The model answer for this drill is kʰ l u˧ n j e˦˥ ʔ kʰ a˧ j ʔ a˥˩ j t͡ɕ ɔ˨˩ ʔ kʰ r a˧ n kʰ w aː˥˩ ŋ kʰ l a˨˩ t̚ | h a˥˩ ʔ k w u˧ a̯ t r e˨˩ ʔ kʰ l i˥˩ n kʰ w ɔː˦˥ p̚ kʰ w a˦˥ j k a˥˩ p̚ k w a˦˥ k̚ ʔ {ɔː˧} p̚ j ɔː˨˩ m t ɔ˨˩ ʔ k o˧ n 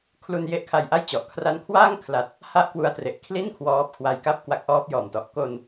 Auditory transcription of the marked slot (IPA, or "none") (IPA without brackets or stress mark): ɔː˦˥